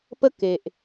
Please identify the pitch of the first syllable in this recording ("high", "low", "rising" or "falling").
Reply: high